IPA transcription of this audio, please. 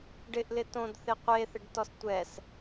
ɖɪʔlɪ tõdθɪ qʷeθɪɖtɔs tʷɛs

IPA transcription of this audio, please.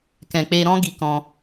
kɛ̃˨k͡pe˧ɾɔ̃˦ ɡi˧kɔ̃˧

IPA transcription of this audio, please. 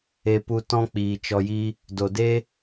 e˧pu˧ tɔ̃˦k͡piː˨t͡ʃɔ˧jiː˦ | do˨deː˦

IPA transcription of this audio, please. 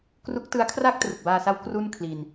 kru˦˥k̚tɯ˦˥a̯ kʰra˥˩k̚trɯ˨˩k̚baː˧sa˦˥w kru˥˩n kʰli˧n

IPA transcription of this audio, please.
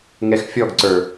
ŋɛxfʲɔɡǀə˞

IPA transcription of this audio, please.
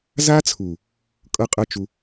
za˦t͡sʰu˨ | kʼɤ˦qʼɤ˦t͡ʃu˧

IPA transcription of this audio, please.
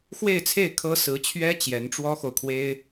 xwe˥˧ɪ̯t͡sʰe˥˩ɪ̯ kʰɤ˥ sɹ̩˧˥t͡ɕʰɥɛ˥ t͡ɕjɛ˧˥nʈ͡ʂwɔ˥xo˨ʊ̯kʰwe˥ɪ̯

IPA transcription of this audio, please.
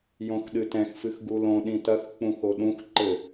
jõxɗɨtɛ̃x fɨxɡulõ ɗĩtɐx k͡pũxoɗũx ǃɘ

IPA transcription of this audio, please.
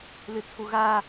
lɨt͡sʰuɣa

